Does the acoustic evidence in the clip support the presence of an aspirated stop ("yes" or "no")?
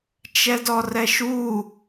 no